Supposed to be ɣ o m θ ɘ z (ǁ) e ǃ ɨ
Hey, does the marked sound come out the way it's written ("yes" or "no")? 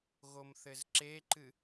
yes